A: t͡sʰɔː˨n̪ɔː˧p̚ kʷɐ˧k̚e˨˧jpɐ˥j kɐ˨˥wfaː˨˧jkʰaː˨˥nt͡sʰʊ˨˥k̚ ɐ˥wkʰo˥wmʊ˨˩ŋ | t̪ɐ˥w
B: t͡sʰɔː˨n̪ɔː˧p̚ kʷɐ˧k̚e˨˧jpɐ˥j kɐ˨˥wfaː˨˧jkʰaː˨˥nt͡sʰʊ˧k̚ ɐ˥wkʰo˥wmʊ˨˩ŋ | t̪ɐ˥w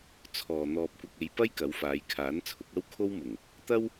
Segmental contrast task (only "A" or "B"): A